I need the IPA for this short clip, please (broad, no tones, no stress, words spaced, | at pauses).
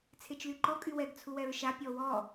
t͡sʰet͡ʃlyǃɔ kʼywɛɡ t͡sʰuwɛɹʃa pʲɔwɔ